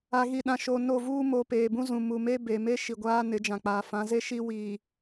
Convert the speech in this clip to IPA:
a˨ ɣ i˨ ɗ ã˨ ʃ o˨ n o˦˨ v uː˦ m o˨ p eː˨ b ũ˦ z ũ˨ m u˨ m e˦ b e˨ m e˦ ʃ i˨ ɡʷ aː˦ n ɪ˨˦ d͡ʒ ã˨ k͡p aː˨ f ã˨˦ z e˦ ʃ i˦ w iː˨

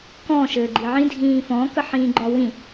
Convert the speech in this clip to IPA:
k ɔ̃ ʃ ɘː ɡ͡ǃ i ʕ ĩ dʱ ĩː f ɔ̃ k ə ħ ĩː ɡ͡ǃ ɒ w ĩ

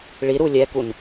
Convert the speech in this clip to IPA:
ɭ i ɾ u lʲ ɛ k u n

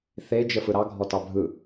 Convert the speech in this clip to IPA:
θ e d͡ʒ ə f ɯ ɾ ɑ ɡʱ ɔ t ɑ bʱ ɯ

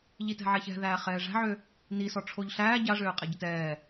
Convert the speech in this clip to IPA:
ʎ i t ɛ̤ ʕ ɛ ç ɛ̤ ð æː χ ɛː ʐ æ̤ ʕ ø | n i s ɔ ʈ͡ʂʰ o ʎ ɬ æː ɟ a ʐ øː qʼ ɛ ɟ ə t ɛː

